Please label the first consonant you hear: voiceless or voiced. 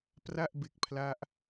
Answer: voiceless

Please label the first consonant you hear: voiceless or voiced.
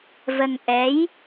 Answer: voiced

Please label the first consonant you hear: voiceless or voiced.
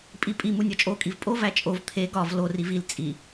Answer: voiceless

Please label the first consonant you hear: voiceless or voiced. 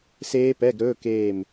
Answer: voiceless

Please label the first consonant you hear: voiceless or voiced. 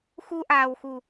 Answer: voiceless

